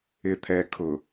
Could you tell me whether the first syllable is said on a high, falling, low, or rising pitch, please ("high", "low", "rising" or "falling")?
low